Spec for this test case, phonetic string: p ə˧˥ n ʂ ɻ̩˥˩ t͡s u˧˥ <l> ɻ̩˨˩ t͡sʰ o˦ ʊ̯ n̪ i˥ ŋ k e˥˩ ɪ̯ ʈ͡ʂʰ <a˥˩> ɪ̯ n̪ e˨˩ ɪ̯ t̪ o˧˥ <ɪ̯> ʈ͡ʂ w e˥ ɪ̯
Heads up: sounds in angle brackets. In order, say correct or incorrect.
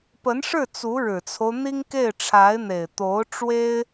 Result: incorrect: ɻ, incorrect: a˧˥, incorrect: ʊ̯

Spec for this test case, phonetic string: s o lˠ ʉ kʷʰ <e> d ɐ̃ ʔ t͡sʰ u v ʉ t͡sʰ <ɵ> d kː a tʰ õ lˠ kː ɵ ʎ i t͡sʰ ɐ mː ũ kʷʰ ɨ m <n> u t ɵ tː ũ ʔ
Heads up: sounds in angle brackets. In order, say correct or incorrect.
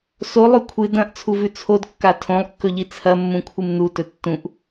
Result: incorrect: ɨ, incorrect: o, correct

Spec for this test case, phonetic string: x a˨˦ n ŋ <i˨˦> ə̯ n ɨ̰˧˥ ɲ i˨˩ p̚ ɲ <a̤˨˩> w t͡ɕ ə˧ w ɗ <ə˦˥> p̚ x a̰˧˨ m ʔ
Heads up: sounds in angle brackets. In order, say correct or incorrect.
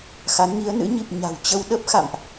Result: correct, correct, correct

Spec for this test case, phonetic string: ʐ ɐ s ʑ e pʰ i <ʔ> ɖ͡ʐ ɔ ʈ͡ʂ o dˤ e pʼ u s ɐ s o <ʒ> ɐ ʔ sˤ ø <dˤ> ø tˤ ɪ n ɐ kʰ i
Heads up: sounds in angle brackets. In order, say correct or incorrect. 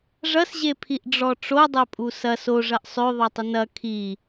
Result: correct, incorrect: ʐ, incorrect: ðˤ

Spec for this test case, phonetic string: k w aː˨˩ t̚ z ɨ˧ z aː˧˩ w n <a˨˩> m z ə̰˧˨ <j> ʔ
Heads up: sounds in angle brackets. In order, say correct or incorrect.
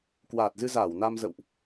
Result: incorrect: a˧, incorrect: w

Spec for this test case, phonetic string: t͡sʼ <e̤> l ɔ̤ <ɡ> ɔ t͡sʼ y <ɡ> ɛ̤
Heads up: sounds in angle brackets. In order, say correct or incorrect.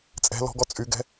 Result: incorrect: ɛ̤, correct, correct

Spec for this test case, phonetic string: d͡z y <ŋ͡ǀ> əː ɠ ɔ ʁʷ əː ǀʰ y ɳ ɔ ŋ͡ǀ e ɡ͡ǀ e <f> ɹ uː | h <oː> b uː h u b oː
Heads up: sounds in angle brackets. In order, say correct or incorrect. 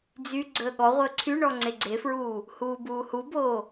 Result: incorrect: ɡ͡ǀ, correct, incorrect: uː

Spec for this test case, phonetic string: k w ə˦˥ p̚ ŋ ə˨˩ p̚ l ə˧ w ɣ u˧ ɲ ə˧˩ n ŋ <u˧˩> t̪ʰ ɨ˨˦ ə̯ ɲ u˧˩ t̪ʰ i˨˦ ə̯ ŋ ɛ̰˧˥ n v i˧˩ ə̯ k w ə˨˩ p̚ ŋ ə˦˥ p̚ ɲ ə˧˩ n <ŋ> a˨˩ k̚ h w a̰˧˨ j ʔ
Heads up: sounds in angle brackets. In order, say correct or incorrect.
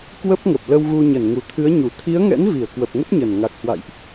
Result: correct, correct

